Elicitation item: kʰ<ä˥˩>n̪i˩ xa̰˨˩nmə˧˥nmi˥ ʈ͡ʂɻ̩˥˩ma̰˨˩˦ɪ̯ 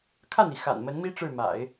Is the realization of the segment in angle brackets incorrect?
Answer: no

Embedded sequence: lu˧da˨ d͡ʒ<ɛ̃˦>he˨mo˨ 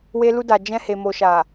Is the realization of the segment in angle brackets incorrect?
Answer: yes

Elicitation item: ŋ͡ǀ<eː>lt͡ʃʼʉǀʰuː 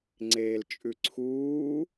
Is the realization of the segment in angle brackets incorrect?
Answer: no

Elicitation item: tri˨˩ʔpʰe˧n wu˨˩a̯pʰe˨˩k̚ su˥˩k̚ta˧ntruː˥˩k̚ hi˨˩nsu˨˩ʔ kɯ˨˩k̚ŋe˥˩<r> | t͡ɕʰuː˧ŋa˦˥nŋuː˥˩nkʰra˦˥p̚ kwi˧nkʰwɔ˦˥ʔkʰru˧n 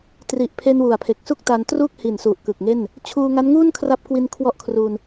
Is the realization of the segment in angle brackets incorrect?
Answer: yes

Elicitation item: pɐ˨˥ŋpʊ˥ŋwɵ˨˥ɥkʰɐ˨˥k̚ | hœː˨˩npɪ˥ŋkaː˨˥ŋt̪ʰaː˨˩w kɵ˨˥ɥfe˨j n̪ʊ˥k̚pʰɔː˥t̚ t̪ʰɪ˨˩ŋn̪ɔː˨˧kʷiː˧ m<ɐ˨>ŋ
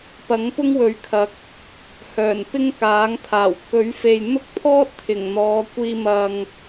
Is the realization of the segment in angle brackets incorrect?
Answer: no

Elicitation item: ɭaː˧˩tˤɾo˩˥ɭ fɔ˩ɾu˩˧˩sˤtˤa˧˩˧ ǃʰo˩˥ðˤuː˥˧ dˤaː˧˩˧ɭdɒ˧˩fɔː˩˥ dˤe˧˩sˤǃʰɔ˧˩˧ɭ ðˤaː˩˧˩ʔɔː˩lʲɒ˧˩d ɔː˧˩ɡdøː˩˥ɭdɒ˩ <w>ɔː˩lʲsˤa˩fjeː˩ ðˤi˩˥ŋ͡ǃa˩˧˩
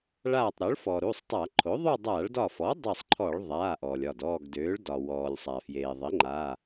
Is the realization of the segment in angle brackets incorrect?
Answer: no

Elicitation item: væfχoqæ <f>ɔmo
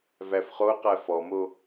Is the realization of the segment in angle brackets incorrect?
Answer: no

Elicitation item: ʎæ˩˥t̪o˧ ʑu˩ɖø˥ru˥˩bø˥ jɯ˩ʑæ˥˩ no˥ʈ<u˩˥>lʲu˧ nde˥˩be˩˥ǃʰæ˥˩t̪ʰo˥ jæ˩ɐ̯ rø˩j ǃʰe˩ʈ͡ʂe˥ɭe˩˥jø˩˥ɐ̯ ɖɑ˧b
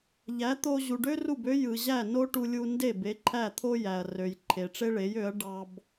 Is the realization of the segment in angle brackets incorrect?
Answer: yes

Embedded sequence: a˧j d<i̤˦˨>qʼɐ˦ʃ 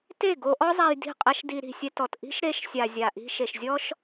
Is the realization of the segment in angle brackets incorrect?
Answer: no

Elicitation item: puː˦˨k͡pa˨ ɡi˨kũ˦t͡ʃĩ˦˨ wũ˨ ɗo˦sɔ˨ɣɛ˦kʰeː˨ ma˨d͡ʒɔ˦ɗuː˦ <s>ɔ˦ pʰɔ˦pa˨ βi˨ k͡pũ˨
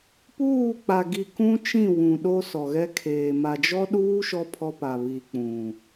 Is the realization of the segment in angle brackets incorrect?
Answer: yes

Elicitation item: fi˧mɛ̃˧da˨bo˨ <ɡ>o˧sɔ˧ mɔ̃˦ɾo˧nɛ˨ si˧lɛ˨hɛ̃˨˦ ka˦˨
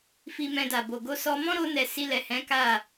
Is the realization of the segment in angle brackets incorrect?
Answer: no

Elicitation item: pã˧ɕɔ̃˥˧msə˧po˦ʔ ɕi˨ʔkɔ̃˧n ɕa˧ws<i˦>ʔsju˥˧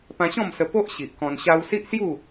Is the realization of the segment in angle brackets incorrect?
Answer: no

